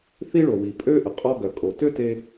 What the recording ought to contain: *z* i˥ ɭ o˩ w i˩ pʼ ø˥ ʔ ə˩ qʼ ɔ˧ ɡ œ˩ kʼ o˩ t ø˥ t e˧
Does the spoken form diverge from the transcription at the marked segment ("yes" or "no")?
yes